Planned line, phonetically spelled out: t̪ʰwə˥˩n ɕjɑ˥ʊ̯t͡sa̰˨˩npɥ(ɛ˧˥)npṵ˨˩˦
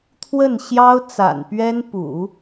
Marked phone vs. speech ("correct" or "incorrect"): incorrect